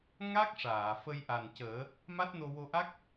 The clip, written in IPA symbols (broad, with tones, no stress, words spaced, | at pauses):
ŋa˦˥k̚ʂaː˨˩˨ fə˧jʔa˨˩ncəː˨˩˦ | ma˦˥t̚no˧wo˧ʔa˦˥k̚